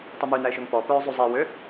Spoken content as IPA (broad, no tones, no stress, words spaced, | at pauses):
tˤymynæɪ̯ʃøŋ pɔ pœːzˤuzˤi wø